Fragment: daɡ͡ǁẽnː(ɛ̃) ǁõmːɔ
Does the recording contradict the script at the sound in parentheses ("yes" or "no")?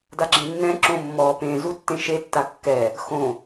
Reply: no